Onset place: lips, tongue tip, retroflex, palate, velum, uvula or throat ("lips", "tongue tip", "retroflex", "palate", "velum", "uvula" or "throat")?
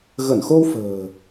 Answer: velum